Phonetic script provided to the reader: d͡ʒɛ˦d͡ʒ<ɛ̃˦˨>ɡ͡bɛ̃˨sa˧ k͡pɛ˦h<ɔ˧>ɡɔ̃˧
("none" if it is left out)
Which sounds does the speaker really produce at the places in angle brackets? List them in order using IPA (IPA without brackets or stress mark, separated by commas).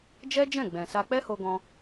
ɛ̃˦˨, o˧